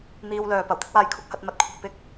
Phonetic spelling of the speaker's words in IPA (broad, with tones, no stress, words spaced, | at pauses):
n̪iː˧wlœː˨ pɐ˨˩wt̪ɪ˥k̚waː˧j kʰʊ˥k̚hɐ˨˥t̚ mɐ˨˥t̚kʷʰɐ˧k̚ pɪ˥k̚